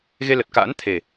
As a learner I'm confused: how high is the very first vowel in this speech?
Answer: mid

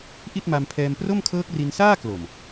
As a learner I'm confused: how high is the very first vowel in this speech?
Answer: high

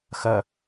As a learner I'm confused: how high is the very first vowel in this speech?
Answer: mid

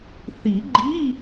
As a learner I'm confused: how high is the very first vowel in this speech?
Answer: high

